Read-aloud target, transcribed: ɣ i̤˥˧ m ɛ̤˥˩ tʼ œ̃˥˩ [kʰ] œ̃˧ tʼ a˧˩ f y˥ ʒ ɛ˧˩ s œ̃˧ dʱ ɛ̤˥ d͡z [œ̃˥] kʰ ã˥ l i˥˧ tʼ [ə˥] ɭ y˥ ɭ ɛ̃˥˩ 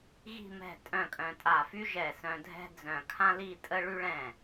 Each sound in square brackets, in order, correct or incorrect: incorrect: kʼ, incorrect: œ̃˧˩, correct

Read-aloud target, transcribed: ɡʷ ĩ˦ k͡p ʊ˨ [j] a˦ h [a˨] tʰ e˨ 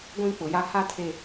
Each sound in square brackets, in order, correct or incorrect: correct, incorrect: a˦

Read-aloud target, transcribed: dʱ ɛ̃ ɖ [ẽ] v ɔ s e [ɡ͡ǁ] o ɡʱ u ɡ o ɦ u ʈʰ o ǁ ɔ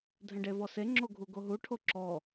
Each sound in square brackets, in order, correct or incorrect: incorrect: e, incorrect: ŋ͡ǁ

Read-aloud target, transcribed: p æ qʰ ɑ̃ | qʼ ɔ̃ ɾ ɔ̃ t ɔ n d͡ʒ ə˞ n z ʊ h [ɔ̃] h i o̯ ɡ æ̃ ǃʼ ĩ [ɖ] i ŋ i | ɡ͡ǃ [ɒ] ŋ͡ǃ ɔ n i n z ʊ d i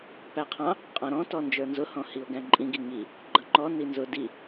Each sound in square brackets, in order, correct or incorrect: correct, incorrect: ɡ, incorrect: ʌ

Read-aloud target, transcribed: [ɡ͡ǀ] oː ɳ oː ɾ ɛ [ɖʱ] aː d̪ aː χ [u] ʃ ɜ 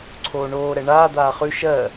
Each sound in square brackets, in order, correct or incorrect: incorrect: ǀʰ, incorrect: ɳ, incorrect: ʉ

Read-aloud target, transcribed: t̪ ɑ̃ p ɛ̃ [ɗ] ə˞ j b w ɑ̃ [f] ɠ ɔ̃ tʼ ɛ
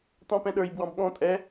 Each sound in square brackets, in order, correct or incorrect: correct, incorrect: b

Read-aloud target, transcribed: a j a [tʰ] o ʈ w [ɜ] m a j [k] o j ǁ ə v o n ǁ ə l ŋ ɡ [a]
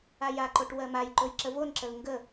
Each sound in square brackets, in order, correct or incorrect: incorrect: ǃ, correct, incorrect: ǃ, incorrect: ə

